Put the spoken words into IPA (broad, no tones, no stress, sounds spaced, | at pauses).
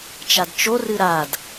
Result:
t͡ʃ a d t͡ʃ o r ɨ ɾ a d